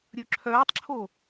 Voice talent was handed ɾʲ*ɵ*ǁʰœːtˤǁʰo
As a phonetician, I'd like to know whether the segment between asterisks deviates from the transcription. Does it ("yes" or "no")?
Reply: no